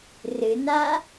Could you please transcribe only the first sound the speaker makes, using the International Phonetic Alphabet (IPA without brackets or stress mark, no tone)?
r